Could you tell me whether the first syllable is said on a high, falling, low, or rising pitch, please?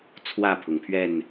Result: falling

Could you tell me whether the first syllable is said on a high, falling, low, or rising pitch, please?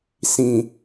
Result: low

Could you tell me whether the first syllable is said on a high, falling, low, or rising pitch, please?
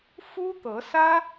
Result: high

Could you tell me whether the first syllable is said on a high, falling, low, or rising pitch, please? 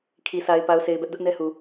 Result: low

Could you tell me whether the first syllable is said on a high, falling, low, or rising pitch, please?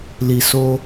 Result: low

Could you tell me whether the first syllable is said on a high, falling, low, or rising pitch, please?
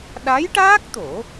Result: rising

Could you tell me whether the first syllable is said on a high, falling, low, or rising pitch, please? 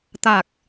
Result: low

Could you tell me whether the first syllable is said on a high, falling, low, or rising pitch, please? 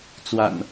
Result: low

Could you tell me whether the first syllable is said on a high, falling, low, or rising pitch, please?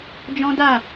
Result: high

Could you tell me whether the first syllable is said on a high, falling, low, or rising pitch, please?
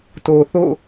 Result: low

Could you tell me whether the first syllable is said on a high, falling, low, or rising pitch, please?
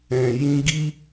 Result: low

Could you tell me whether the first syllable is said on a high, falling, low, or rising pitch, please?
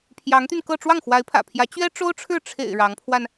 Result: rising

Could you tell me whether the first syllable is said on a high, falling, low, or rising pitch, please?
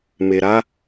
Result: low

